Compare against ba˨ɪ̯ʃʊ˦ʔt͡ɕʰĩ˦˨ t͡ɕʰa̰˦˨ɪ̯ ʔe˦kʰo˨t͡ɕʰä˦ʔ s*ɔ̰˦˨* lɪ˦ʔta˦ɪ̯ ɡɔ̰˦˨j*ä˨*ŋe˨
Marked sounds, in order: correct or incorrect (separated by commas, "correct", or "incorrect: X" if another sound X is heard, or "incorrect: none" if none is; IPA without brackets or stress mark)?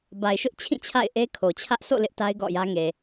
incorrect: o̰˦˨, incorrect: ä˦